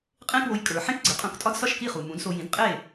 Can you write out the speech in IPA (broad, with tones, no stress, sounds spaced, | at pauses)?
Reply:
qʼ ẽ˥ k w o˧ j kʼ ə˞˩ ħ ẽ˥ k ɡ͡ǀ e˩˥ qʼ ũ˧ k tʼ ɒ˥ d s ɒ˥˩ ʃ k i˥˩ χ u˩ m ũ˩˥ d s o˧ j ĩ˩˥ d qʼ e˥˩